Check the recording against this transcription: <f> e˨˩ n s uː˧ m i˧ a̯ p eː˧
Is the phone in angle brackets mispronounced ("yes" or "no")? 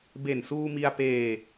yes